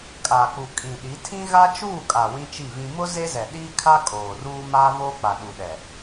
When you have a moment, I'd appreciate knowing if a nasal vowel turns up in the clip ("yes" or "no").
yes